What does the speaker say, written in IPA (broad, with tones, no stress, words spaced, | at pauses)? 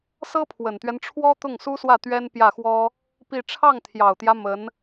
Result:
sɤ˥pʰwə˨˩nt̪ɥɛ˦n ʈ͡ʂʰwɔ˥t̪ʊ˥˩ŋsu˥swä˥˩ t̪ɥɛ˥npjä˥˩xwɔ˥ | pi˥˧ ʈ͡ʂʰɑ˥˩ŋt̪ʰjɑ˨˩ʊ̯t̪jä˦ mə˧˥n